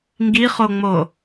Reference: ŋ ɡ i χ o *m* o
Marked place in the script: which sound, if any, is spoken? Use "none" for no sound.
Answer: ŋ͡m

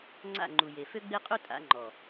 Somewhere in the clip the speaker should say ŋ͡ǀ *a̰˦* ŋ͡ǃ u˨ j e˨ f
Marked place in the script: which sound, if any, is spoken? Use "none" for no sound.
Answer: a̰˦˨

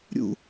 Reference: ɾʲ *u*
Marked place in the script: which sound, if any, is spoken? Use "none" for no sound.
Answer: ṵ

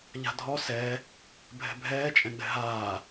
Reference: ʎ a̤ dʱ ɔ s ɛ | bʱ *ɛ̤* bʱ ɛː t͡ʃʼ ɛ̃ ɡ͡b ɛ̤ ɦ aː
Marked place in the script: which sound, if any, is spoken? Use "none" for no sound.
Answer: ɛ̤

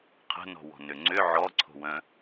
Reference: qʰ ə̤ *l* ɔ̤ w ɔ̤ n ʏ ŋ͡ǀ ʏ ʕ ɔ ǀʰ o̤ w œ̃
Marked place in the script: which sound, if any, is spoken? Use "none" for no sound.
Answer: n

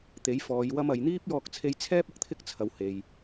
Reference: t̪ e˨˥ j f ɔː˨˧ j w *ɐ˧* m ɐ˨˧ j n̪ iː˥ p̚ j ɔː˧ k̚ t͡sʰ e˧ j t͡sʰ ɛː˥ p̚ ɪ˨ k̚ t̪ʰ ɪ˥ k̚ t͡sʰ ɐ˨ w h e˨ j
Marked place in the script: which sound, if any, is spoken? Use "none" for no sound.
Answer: ɐ˥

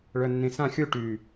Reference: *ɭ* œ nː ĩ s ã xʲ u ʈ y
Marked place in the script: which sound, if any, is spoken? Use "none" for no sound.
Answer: ɭ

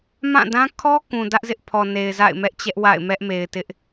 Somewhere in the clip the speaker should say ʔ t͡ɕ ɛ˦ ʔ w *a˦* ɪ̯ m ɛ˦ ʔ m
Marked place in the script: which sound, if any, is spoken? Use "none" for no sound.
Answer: a̰˦˨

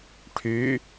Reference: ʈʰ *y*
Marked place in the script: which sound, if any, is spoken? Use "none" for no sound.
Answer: y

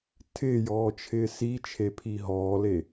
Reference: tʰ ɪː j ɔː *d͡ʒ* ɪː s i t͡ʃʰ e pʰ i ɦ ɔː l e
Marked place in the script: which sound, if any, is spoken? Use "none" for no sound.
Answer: t͡ʃʰ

